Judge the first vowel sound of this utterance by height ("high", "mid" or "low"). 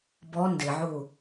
mid